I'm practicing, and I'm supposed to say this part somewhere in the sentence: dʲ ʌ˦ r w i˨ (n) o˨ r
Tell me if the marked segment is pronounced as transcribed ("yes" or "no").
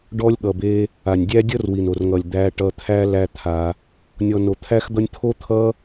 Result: yes